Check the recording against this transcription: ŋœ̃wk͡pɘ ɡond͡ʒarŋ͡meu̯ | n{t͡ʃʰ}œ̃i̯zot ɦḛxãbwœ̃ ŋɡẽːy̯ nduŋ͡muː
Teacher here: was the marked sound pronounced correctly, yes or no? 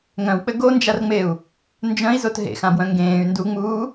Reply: no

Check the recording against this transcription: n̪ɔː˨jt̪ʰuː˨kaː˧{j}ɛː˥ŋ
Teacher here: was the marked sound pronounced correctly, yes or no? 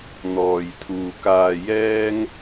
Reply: yes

